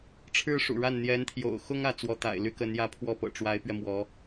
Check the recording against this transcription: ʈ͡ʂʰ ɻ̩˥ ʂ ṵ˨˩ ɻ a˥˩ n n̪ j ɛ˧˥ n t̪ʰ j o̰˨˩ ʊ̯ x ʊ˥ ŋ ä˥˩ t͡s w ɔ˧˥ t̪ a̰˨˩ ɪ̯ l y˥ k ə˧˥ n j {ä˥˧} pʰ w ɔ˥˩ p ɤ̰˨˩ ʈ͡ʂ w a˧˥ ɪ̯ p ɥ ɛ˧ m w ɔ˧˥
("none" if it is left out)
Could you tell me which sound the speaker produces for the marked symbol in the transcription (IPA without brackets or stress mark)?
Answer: ä˥˧